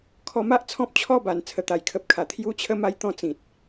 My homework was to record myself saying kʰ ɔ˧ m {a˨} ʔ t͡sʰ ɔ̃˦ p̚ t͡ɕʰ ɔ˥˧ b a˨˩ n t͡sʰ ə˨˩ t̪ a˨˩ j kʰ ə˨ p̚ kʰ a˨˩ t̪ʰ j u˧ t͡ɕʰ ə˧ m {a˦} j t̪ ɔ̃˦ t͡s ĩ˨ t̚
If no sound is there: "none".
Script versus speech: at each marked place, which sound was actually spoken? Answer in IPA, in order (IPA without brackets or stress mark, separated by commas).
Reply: a˦, a˧